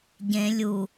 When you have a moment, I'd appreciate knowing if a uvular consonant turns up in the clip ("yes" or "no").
no